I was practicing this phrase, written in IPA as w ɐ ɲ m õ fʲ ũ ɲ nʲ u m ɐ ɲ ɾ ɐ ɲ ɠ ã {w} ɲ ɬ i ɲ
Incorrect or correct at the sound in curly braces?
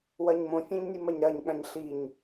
incorrect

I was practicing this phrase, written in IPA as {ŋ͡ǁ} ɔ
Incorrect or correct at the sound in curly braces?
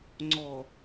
incorrect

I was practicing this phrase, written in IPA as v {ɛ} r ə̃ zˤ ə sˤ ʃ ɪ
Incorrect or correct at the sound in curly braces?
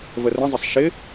incorrect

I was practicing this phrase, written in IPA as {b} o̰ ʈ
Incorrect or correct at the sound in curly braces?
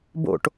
correct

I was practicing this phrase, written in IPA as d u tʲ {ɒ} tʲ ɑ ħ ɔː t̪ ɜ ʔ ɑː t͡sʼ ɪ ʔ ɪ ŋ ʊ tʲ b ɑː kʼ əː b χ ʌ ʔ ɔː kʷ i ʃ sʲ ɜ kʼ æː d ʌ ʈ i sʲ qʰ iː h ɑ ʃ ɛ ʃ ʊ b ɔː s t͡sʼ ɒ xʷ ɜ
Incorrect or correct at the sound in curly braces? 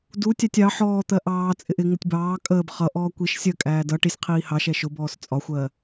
incorrect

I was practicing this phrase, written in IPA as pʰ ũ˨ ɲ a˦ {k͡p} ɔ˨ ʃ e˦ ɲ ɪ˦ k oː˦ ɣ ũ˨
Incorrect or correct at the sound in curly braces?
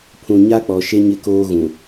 correct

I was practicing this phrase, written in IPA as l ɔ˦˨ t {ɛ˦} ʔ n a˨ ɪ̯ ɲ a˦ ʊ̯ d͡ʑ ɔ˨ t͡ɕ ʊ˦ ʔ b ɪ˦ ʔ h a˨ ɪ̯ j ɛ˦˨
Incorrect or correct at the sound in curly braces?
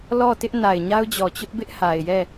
incorrect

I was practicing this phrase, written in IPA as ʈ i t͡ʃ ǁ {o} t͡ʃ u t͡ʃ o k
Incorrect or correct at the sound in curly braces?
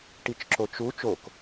correct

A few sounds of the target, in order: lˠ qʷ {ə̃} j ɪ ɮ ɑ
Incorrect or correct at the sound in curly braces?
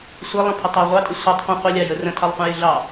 correct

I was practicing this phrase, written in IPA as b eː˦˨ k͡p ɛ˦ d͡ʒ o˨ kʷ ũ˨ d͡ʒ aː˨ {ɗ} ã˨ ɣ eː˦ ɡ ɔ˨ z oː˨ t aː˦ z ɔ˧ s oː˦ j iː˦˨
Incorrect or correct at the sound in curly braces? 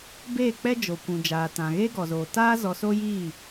incorrect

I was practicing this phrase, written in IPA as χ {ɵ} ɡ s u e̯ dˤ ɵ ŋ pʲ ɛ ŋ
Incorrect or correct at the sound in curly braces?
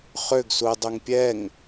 incorrect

